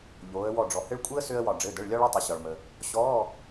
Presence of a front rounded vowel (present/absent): present